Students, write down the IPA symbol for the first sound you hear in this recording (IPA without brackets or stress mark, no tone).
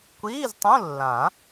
kʷ